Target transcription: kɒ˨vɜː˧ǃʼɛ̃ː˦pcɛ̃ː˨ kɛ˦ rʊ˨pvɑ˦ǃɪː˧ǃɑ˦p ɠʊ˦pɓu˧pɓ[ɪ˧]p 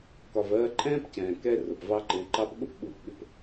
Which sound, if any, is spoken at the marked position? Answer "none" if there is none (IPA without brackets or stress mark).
ɪ˧